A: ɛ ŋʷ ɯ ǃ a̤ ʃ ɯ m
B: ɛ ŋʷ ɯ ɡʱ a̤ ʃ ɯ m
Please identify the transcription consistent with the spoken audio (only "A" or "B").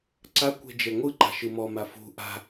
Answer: A